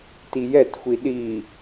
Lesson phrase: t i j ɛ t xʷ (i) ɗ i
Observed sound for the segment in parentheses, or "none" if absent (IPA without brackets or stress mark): i